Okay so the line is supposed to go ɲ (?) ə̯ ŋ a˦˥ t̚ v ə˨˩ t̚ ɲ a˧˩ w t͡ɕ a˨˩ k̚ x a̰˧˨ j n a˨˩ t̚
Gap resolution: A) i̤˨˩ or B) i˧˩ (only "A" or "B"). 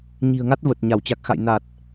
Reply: A